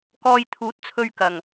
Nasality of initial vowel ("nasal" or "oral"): oral